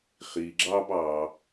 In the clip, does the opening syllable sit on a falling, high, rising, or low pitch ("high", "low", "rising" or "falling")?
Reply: low